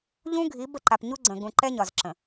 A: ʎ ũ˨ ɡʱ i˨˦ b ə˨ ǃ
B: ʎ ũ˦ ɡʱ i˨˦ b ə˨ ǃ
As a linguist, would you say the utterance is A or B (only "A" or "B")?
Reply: B